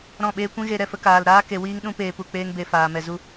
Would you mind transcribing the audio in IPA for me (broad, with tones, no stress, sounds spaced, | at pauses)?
ɾ ɔ̃˦˨ ɓ eː˦ kʷ ĩ˦ ɣ e˦ ɾ ɛ˧ f ə˦ k aː˧ l ɾ aː˦ k e˧ w iː˦ ŋ ɗ ũ˦ p eː˧ p u˧ k͡p eː˦ ŋ b e˧ f aː˨ m ɛ˨ z u˦